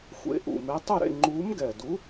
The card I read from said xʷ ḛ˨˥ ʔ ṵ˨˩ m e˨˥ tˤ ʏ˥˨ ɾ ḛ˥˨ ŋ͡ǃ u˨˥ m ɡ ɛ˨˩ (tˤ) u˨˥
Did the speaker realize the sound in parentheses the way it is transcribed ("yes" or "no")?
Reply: no